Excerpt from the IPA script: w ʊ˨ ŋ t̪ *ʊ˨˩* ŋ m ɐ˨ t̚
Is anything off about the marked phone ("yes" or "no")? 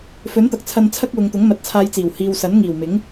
yes